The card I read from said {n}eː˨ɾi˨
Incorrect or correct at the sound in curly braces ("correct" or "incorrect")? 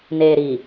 correct